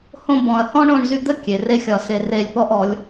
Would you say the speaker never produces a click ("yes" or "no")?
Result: yes